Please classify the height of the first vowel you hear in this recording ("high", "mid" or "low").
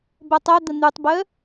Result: mid